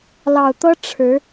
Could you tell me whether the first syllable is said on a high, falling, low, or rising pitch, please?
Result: low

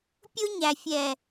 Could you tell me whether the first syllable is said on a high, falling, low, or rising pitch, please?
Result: high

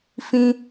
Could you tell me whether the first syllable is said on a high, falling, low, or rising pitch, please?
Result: high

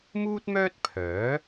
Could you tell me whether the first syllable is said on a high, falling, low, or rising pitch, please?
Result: high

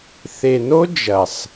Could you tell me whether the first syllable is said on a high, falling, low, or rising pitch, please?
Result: low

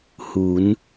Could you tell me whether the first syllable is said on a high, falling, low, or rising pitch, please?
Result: rising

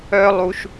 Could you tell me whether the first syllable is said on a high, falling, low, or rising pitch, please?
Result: high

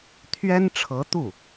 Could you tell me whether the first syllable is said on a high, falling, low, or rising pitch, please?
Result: high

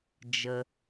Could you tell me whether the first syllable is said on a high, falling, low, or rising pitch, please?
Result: low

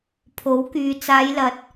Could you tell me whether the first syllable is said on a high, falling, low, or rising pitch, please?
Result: rising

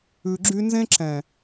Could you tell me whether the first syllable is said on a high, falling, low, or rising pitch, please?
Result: low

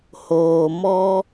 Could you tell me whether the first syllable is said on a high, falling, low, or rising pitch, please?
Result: low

